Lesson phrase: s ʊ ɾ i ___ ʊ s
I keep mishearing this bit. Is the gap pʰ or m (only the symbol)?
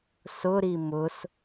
m